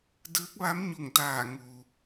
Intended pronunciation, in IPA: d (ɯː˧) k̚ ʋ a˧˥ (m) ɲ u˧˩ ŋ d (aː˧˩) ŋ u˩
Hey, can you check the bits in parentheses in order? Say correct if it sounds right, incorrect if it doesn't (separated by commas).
incorrect, correct, correct